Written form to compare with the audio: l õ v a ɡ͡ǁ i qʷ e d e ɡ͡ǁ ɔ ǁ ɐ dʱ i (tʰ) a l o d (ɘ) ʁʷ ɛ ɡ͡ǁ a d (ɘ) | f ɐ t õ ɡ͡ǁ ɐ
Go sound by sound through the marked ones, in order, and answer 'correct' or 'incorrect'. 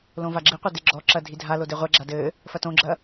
incorrect: dʱ, incorrect: e, correct

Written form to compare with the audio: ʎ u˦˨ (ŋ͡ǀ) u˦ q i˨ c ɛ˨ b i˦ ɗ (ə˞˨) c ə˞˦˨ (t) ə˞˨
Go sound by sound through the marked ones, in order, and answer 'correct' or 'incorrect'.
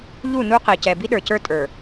incorrect: n, correct, incorrect: tʼ

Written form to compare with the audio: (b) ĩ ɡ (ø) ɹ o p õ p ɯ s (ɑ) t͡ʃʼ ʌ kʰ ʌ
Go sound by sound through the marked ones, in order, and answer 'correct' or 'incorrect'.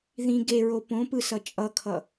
incorrect: ð, incorrect: e, incorrect: ʌ

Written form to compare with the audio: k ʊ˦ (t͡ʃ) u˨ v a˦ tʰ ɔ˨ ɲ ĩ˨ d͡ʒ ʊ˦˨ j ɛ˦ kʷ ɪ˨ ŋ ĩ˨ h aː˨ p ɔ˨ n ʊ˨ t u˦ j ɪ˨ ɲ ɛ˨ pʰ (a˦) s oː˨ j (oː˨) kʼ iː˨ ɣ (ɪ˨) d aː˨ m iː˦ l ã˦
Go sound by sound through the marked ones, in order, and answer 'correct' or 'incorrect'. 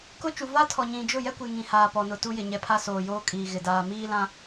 correct, correct, incorrect: oː˦, correct

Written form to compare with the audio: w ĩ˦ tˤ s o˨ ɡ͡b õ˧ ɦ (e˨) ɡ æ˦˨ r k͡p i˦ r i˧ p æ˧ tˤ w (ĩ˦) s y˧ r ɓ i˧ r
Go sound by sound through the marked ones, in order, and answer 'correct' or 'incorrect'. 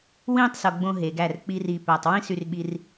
correct, correct

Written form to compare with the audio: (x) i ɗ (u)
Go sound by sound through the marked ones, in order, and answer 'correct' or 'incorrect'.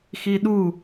correct, correct

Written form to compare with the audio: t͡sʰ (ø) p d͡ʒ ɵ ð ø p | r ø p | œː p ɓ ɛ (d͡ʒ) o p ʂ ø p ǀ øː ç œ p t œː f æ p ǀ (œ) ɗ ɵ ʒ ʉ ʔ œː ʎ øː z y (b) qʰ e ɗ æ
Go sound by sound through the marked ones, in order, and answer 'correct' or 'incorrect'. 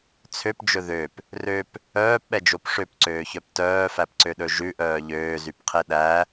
correct, correct, incorrect: ø, incorrect: p

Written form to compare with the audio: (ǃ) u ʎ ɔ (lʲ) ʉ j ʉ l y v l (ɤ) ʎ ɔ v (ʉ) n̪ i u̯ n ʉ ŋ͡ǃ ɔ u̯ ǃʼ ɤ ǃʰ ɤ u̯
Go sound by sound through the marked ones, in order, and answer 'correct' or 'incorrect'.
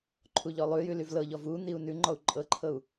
incorrect: ǃʰ, incorrect: lˠ, correct, incorrect: u

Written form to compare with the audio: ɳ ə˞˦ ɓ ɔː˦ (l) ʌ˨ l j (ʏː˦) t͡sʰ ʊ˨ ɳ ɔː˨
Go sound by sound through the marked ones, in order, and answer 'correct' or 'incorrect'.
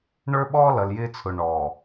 correct, incorrect: ɪː˦

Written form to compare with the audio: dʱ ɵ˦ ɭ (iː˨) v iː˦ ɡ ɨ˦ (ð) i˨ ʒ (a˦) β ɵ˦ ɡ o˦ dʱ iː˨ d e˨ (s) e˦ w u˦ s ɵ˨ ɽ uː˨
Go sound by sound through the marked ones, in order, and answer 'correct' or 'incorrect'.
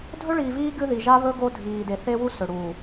correct, correct, correct, incorrect: θ

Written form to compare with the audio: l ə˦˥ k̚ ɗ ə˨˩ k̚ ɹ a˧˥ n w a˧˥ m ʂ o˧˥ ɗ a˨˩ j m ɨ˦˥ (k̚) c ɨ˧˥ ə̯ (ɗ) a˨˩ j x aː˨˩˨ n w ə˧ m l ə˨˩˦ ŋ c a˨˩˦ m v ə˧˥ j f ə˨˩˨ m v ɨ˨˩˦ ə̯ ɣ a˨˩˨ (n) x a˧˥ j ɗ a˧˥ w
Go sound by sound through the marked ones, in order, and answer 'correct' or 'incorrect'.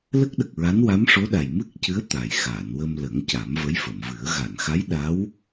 correct, incorrect: t̪, correct

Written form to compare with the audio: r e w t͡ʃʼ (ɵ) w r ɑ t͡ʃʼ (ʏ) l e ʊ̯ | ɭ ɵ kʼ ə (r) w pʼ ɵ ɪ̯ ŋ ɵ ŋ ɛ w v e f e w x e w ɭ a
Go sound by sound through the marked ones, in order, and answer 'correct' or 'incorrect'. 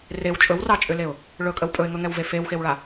correct, correct, incorrect: none

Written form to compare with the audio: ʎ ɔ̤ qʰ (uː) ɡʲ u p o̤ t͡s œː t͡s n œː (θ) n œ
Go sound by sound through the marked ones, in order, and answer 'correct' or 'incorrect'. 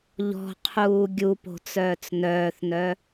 correct, correct

